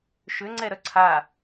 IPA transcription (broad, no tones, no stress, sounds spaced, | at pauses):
ʃ ʏ ŋ͡ǀ ɛ ɾ œ ǀʰ a